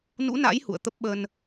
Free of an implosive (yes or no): no